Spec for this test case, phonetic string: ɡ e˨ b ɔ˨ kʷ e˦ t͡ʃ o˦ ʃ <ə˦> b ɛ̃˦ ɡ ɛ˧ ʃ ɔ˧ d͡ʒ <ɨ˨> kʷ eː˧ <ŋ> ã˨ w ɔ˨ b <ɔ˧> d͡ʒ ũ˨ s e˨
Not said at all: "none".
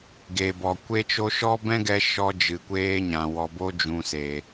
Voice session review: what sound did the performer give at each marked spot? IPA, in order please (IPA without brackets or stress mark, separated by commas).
ɔ˦, ɨ˨, ɲ, o˧